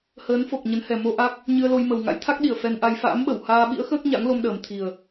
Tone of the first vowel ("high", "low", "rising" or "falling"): rising